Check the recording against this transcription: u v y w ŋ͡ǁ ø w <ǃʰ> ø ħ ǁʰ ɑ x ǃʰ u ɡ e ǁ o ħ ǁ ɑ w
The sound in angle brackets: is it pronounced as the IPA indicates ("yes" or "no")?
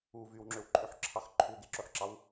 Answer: no